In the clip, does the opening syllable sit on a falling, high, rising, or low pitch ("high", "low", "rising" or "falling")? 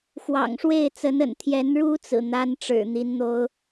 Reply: low